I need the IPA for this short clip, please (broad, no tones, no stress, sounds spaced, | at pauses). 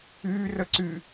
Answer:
yː r ə ǀ y